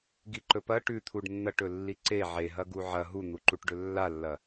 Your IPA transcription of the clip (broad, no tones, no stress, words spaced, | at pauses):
ɡiǃɵpɐ ʈʉt̪ʰuɖnːɐʈɵ lːiǀe ʕeɦɐ ɡuʕɐ ɦun̪uǃuʈɖɵ lːalːɐ